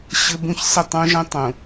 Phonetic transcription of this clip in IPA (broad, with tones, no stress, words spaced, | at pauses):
ɕɘ˦bũ˦ç sə˦˨ tˤũ˦ʒə̃˦ tˤũ˨